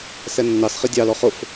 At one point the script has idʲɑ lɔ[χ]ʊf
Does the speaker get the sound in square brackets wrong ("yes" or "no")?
no